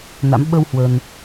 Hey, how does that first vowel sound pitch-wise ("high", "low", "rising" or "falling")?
rising